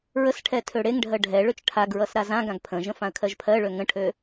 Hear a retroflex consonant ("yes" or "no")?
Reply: yes